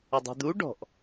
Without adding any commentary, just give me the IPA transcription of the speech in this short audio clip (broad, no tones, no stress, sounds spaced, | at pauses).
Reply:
ɘ dˤ i̤ d̪ u ɖ ɔ̤ ʔ